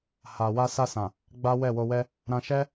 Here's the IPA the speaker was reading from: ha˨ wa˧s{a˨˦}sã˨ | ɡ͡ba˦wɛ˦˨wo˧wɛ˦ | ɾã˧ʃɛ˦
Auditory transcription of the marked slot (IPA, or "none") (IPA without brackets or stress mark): a˧